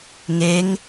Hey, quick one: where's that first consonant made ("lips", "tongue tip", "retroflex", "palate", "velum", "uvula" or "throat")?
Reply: velum